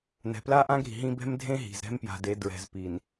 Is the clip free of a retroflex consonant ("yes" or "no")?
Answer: yes